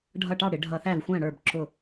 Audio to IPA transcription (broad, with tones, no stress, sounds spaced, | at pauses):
ɖʱ ʌ˧˩ ʈ ɑ˥˩ ɽ ɪ˧˩˧ ɖʱ ʌ˧˩˧ θ æ˥˩ v xʷ æ̃˥˩ ɽ ə˞˧˩ b ǁ ʊ˧˩